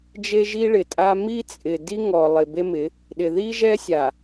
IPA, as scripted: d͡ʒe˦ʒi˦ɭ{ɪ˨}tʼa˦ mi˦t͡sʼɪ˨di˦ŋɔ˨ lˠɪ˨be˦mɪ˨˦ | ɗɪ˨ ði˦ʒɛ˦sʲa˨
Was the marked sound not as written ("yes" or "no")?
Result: no